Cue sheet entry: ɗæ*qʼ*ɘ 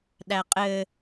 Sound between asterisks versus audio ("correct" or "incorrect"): correct